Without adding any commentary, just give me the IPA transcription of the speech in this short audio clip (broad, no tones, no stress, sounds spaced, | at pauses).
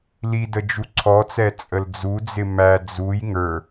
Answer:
l i d ə d͡ʒ u ǀʰ ɔ t͡s ɛ t͡sʼ ə l d͡z u d͡z ɪ m æ d͡z u j ŋ ə˞